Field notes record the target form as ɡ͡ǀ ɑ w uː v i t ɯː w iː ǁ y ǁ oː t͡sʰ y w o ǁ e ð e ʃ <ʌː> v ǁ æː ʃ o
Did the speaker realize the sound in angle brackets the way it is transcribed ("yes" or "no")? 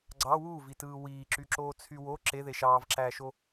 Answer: no